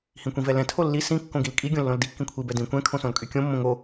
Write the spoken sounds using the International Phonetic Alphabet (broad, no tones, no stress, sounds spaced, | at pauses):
h ĩ kʷ ĩ v ɛ l ɛ̃ tʰ o lː i s ĩ kː õ ɡ i l kʼ i ɡʲ õ lː õ l d i kː ĩ kʷʰ i b ɛ d ĩ kʷ ɛ̃ kʰ õ s õ l kʼ y kʲ õ mː õ ŋ o